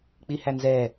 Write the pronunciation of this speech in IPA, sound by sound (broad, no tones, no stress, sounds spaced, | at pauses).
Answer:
k͡p i h æ n z ɛ